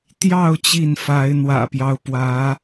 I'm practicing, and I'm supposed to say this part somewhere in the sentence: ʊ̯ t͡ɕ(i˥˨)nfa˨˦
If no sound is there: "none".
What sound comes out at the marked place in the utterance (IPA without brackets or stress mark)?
i˥˨